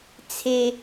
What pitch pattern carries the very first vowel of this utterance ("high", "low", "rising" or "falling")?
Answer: high